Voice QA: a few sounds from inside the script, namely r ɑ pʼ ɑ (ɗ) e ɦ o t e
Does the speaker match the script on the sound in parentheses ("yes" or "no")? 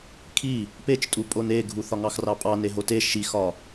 no